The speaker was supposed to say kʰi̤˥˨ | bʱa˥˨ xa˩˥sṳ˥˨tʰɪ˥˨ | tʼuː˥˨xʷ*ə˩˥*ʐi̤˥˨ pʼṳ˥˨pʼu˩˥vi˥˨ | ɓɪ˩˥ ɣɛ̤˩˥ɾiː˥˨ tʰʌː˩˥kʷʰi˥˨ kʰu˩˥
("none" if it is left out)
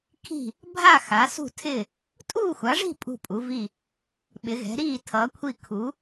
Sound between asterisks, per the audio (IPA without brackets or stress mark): a˩˥